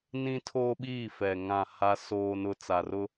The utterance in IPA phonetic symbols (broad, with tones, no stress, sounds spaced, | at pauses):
n ĩ˦ tʰ oː˦ ɓ iː˦˨ f ɛ˨ ŋ ã˦˨ h a˦ s oː˦ n ʊ˦ t͡s a˨ r ʊ˦